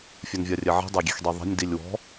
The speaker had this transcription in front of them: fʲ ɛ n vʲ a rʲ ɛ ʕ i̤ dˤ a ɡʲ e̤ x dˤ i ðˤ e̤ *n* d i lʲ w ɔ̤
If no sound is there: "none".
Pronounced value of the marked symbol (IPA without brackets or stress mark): nʲ